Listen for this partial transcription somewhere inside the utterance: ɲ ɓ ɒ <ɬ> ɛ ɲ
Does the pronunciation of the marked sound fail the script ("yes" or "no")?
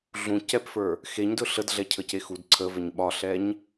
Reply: no